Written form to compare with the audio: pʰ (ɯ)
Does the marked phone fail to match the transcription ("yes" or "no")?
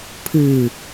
no